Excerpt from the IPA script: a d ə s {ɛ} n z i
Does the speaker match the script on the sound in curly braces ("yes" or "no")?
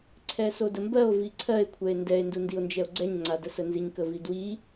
no